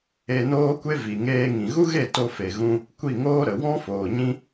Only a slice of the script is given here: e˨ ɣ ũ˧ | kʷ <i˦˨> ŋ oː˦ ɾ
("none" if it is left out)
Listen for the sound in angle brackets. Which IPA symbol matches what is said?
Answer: i˦˨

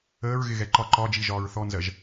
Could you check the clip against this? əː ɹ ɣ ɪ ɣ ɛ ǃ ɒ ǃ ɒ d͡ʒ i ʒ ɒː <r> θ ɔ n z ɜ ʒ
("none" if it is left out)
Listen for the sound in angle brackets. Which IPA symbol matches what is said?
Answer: ɹ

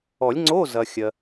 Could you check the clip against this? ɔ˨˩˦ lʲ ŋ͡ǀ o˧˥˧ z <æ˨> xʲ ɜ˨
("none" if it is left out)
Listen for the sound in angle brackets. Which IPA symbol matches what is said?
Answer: ɐ˨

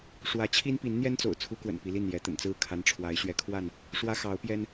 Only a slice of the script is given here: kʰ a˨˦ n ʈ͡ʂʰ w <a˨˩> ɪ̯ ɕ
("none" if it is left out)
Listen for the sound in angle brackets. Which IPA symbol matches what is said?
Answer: a˨˦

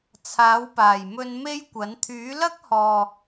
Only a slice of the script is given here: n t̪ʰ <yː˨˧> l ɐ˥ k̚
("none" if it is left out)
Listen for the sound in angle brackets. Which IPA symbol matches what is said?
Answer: yː˨˥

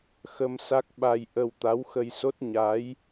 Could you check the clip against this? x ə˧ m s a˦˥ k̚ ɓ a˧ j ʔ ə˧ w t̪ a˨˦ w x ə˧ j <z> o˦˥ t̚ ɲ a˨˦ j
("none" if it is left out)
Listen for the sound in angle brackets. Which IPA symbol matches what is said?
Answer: s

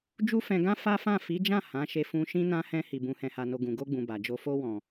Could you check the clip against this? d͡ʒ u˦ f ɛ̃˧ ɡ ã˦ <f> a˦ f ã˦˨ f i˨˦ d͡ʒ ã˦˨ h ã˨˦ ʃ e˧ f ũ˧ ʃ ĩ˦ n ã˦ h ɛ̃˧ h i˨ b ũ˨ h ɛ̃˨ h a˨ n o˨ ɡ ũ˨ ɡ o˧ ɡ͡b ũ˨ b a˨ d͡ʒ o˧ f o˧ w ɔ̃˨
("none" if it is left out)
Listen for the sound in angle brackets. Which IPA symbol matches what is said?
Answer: f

